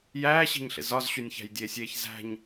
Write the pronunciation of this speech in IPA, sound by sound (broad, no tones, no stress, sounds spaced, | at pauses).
j æː ɕ i̤ ɲ ɬ ḛ z ɒ z ɕ u nʲ ç æ̤ j dʲ eː sʲ eː ç z æ̤ ɲ